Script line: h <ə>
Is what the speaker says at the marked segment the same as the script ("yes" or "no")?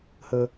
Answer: yes